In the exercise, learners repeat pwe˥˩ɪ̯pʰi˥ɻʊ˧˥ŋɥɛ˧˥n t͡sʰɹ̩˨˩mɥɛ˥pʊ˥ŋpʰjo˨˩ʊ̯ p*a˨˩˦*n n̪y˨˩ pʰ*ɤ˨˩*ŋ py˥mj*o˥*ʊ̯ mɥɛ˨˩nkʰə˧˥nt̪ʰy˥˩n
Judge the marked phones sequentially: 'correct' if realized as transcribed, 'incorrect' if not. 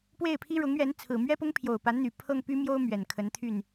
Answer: incorrect, incorrect, correct

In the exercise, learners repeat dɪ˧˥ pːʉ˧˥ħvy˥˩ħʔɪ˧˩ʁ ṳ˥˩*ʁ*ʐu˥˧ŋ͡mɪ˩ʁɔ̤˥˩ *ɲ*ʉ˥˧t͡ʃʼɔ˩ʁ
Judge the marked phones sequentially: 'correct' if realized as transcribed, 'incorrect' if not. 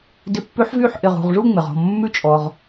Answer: correct, incorrect

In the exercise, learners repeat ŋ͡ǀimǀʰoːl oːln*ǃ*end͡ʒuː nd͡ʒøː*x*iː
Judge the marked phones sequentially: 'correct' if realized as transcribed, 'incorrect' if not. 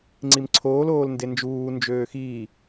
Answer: incorrect, correct

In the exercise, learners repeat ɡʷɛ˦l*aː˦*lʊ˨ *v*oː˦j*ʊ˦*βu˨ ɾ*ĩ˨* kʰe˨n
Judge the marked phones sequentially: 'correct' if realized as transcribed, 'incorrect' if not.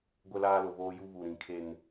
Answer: correct, incorrect, incorrect, correct

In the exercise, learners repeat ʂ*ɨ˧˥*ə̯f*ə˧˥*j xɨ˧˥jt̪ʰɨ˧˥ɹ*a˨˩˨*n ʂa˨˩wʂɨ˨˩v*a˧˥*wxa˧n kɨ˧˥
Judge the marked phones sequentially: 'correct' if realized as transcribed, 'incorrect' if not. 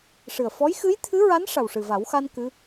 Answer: incorrect, incorrect, incorrect, incorrect

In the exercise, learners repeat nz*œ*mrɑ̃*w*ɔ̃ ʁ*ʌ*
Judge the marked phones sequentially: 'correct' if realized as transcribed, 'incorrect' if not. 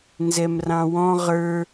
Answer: incorrect, correct, incorrect

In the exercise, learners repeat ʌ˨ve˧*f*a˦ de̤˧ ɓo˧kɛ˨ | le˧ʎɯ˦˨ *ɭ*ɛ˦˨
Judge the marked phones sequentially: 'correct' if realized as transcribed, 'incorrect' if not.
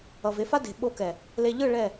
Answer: correct, correct

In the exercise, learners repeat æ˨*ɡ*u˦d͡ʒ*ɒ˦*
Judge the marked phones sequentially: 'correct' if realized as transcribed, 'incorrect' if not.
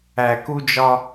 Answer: incorrect, correct

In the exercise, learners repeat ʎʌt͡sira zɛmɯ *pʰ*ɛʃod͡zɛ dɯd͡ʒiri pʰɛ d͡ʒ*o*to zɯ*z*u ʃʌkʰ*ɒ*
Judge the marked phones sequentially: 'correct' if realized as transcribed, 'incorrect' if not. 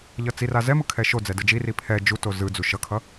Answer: incorrect, incorrect, incorrect, incorrect

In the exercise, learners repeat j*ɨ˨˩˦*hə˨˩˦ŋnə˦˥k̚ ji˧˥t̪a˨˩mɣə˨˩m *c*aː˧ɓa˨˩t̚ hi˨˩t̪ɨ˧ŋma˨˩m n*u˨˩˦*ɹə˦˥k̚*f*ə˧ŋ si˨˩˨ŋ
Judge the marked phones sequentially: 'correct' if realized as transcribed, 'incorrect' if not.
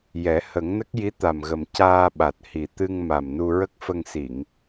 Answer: incorrect, correct, incorrect, correct

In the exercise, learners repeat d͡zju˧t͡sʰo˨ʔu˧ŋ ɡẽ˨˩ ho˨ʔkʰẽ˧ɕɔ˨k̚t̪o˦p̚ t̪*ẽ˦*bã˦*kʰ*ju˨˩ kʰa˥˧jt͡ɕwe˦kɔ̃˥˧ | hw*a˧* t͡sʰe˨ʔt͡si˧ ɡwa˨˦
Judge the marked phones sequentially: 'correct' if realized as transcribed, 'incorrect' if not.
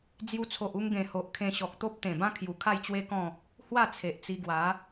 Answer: incorrect, correct, incorrect

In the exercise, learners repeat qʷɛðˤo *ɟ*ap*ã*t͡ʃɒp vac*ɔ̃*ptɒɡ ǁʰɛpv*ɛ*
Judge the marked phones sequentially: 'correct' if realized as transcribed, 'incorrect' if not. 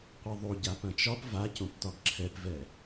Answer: correct, incorrect, incorrect, correct

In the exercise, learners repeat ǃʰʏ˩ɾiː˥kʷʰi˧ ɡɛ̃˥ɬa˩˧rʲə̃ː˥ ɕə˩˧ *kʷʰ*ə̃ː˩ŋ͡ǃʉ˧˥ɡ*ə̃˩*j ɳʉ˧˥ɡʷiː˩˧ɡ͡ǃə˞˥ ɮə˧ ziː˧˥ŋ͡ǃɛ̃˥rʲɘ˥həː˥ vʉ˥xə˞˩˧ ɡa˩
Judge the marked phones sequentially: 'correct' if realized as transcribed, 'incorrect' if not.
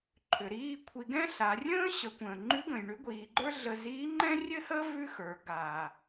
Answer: incorrect, correct

